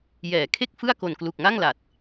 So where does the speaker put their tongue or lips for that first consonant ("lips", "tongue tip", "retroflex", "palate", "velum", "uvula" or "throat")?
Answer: palate